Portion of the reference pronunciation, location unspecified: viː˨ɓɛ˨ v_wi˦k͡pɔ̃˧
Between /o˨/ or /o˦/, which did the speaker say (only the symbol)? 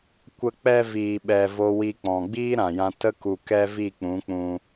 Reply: o˦